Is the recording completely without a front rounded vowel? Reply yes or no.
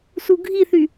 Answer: no